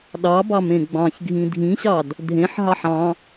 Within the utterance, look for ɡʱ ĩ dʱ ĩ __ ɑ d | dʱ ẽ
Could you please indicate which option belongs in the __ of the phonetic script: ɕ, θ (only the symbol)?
ɕ